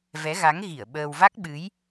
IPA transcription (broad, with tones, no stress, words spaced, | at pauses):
vɛ˨˦ɣa˨˦ŋɣi˧˩ə̯ ɓəː˧w va˦˥k̚ɓɨ˨˦j